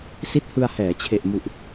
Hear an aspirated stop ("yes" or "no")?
yes